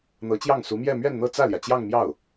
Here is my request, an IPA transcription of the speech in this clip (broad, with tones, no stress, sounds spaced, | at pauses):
n̪ ɤ˧˥ t͡ɕ j ɑ˥˩ ŋ s u˧˥ m j ɛ˥˧ m ɥ ɛ˥˧ n n̪ ɤ˥˧ t͡s ä˥˩ l j ä˩ t͡ɕ j ɑ˥˧ ŋ m j ɑ˥˩ ʊ̯